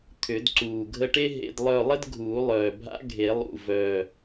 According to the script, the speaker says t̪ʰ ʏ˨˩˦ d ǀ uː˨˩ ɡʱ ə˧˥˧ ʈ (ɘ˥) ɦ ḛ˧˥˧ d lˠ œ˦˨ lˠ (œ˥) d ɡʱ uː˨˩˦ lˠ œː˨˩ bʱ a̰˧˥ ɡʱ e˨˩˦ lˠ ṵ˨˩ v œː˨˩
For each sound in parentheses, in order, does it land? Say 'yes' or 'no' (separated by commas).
no, no